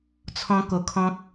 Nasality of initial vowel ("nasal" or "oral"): nasal